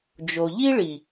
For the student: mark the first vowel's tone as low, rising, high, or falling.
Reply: low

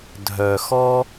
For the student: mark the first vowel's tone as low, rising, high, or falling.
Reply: low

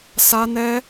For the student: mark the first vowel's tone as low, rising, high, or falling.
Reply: high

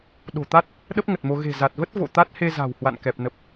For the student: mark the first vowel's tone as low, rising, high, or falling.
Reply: low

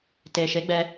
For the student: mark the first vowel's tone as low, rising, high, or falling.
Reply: low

